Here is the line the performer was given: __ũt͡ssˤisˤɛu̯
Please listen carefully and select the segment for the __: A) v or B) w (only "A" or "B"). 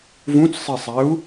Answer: A